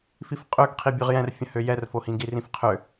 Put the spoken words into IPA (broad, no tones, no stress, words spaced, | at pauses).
fifqʼøɡqʰi bʲøʁjɛ̃rfʲə̃hø jɛrfohĩ ɡirĩfqʰø